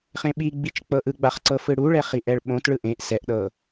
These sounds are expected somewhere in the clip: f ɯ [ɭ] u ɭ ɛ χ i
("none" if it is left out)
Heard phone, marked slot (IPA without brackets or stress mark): ɽ